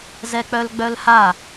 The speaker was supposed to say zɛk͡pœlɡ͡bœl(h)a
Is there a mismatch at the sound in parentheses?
no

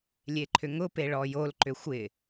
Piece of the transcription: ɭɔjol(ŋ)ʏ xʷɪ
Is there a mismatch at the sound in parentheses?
yes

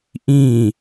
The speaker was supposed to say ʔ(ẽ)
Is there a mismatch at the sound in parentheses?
yes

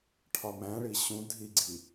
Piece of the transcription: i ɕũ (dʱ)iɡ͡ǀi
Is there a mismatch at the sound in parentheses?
no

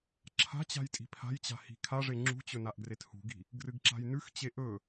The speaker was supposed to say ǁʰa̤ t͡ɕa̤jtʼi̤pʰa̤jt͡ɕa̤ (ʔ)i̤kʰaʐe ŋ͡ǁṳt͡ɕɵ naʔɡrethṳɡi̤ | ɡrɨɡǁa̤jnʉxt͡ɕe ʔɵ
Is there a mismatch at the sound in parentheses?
yes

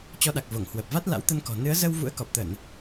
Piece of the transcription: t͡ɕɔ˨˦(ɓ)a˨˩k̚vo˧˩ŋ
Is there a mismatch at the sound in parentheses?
yes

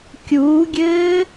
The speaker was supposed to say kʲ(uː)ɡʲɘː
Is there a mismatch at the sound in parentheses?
no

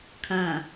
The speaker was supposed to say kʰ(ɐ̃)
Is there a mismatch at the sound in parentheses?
no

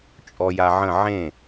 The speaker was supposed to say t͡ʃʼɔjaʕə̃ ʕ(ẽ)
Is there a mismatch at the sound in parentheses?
no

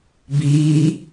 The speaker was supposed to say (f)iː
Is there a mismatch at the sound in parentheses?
yes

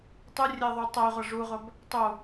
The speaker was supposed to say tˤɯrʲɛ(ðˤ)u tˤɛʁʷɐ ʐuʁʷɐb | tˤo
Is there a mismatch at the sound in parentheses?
no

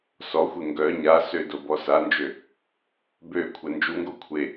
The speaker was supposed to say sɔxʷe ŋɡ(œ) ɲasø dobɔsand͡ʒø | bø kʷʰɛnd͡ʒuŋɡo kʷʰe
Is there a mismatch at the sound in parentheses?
no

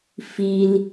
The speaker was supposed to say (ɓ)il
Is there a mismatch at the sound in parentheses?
yes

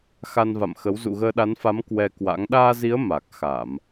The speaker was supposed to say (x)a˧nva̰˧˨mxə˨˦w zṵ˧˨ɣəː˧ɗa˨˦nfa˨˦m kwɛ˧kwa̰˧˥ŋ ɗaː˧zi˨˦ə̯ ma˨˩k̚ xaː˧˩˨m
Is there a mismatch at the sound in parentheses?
no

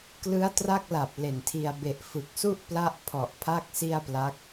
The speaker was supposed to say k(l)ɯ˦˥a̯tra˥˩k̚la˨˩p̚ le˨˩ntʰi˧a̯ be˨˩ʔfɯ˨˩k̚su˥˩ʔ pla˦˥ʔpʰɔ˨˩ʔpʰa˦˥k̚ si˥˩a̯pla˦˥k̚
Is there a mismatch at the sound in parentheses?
no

